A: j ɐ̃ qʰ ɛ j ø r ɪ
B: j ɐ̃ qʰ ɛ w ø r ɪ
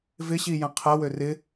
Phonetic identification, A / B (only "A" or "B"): B